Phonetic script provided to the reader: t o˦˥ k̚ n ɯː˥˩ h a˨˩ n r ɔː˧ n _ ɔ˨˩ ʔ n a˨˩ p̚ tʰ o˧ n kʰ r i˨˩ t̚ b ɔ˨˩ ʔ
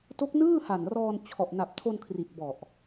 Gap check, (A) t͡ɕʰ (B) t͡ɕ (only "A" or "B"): A